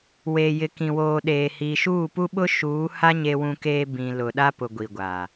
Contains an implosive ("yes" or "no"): yes